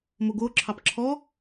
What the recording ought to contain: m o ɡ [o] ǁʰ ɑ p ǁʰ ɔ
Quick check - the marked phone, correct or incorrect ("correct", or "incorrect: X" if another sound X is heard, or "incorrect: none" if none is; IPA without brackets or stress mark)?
correct